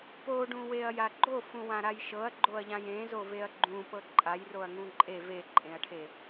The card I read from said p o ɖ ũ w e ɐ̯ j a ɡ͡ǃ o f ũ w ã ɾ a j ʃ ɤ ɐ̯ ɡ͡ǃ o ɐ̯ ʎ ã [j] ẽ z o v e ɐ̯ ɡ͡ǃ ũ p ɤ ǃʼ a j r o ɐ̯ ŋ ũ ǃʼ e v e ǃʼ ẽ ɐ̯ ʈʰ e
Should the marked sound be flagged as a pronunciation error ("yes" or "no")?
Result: no